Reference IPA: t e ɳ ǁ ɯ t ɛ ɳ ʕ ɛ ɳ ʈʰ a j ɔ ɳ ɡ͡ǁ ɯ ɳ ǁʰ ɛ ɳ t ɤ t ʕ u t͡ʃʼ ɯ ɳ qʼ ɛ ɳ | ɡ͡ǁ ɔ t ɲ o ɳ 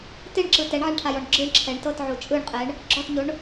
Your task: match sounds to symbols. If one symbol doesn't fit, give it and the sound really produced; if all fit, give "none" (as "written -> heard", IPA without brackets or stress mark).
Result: none